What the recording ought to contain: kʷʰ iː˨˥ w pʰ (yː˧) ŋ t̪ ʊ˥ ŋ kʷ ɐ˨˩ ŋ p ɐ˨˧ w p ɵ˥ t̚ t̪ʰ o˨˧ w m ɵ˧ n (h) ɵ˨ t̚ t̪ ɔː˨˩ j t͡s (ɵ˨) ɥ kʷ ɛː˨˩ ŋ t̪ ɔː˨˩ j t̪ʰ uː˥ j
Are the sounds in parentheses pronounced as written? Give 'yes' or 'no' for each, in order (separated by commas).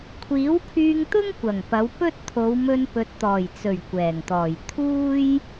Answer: yes, no, no